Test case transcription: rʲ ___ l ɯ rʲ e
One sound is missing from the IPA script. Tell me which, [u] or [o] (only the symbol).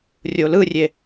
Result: o